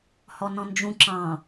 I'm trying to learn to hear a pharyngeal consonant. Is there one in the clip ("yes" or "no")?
no